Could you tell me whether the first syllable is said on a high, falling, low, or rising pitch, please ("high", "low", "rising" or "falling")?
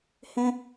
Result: high